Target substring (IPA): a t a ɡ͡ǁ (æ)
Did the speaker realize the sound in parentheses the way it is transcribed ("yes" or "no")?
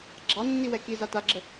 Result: no